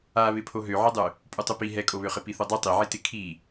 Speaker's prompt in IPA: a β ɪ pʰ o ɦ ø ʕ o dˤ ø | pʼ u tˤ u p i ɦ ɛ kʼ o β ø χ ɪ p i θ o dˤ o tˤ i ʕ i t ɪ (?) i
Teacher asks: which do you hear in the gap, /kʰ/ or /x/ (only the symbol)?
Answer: kʰ